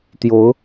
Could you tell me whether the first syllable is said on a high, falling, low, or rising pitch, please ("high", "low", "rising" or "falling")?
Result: rising